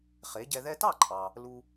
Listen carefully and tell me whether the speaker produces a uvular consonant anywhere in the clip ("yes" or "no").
yes